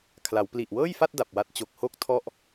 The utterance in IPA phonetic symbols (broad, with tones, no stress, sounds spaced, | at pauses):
kʰ l a˩˦ w p l i˨˩ ʔ w ɤː˥˩ j f a˥˩ t̚ d a˨˩ p̚ w a˦˥ t̚ t͡ɕ o˨˩ k̚ h o˥˩ k̚ tʰ ɔ˥˩ ʔ